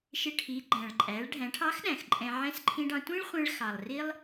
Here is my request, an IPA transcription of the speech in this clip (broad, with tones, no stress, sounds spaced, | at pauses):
ʃ ɪ˧ ʈʰ i˩˧ ɡ͡ǃ æ̃˩ ɭ ǃʼ æ˩˧ ɭ ɖʱ æ̃˩˧ ʈʰ ɑ˧˥ x ɗ æ̃˩ x ǃʼ ɛ̃˧ ʕ ɛ̃˧˥ s ǃʰ ĩ˧ ɖ ɑ̃˧ tʷ ĩ˥ ɭ χʷ ɛ̃˧ ɭ x ɑ˩ lˠ r i˥ lˠ